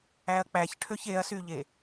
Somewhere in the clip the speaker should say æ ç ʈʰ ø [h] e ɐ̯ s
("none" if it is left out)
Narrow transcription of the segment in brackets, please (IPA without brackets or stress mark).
ç